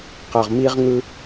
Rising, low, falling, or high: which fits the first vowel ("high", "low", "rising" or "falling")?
low